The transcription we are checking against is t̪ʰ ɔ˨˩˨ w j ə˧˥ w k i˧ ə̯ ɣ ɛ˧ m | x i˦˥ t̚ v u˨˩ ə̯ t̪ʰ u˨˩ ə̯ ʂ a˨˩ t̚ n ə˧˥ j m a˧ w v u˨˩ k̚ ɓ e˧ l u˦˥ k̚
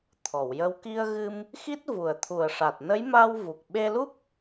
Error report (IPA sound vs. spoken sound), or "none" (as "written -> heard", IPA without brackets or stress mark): ɛ˧ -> ɨ˧